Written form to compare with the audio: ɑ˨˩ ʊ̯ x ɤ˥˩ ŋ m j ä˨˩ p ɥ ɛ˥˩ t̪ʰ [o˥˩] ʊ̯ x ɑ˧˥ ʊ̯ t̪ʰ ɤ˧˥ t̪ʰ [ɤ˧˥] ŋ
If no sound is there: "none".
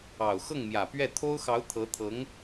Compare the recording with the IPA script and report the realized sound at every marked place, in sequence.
o˥, ɤ˧˥

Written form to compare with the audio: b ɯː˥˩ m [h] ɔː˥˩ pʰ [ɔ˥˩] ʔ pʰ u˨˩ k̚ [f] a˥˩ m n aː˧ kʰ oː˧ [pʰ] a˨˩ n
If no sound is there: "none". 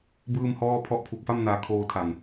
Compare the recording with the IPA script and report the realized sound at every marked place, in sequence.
h, ɔ˦˥, f, tʰ

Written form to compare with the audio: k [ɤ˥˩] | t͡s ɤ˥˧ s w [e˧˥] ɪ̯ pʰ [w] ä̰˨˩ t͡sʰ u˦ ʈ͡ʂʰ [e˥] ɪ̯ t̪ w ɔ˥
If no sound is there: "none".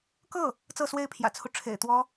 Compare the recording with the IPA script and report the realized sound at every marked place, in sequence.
ɤ˥˩, e˥˩, j, ḛ˨˩

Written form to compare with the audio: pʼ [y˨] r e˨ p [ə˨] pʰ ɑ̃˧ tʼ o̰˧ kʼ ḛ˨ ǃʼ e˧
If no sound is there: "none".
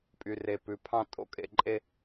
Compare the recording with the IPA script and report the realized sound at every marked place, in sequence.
y˨, ʉ˨

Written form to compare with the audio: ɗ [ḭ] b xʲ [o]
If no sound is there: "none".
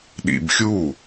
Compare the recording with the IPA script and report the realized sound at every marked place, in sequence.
ḭ, u

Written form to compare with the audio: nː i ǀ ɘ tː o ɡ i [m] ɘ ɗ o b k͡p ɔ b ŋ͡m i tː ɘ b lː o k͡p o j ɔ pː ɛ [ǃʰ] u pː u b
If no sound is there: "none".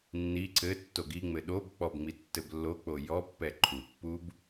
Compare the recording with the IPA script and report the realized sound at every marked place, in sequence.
ŋ͡m, ǃʰ

